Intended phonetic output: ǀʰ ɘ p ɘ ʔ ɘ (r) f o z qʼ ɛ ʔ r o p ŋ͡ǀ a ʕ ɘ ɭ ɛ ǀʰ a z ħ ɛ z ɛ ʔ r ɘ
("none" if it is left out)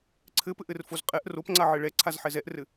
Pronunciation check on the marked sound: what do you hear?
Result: r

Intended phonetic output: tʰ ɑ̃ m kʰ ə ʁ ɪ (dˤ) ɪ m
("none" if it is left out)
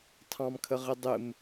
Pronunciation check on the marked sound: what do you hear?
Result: dˤ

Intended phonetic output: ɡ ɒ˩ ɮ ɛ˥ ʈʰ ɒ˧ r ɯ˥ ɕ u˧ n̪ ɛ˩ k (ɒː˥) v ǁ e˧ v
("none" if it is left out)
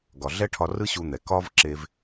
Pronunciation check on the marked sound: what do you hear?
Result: ɒː˥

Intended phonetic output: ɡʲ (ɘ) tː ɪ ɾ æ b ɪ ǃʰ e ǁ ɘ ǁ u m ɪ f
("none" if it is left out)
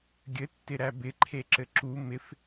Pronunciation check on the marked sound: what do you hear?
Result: ɘ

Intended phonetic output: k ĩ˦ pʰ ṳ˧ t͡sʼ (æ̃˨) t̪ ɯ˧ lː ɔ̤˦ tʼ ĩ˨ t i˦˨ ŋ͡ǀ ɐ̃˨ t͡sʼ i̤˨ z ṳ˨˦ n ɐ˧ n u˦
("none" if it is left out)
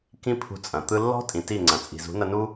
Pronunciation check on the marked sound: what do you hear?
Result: ɐ̃˨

